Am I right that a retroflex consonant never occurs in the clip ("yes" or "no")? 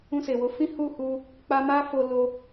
yes